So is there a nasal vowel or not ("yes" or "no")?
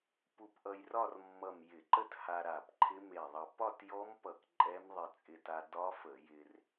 no